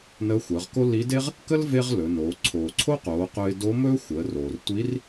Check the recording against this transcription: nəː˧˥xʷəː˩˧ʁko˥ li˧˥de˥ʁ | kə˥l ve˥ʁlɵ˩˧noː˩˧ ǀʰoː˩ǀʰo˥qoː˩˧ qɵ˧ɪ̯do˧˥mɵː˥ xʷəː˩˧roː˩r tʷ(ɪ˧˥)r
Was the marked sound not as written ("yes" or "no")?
yes